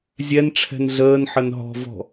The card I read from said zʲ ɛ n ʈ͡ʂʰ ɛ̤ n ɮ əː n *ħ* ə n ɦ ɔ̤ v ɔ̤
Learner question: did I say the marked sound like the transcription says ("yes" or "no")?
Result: yes